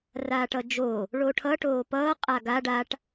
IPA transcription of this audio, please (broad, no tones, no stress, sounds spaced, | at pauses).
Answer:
r aː ʈ ʌ d͡ʒ o | ɭ o ʈʰ ʌ ʈ oː p ʌː qʼ a ɡ a ɖ a ʈ